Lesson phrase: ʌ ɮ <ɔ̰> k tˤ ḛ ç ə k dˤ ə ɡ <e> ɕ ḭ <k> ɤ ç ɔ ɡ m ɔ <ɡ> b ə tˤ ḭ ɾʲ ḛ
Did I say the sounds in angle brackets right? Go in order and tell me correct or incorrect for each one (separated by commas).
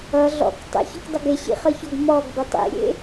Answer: correct, correct, incorrect, correct